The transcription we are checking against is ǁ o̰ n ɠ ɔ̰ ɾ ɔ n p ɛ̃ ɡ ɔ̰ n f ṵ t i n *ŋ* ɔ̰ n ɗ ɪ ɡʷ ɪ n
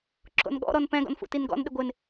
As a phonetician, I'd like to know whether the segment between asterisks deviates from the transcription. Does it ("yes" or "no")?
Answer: yes